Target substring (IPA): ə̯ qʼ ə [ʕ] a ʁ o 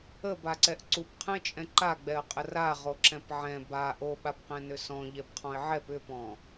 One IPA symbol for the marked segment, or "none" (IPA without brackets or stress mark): r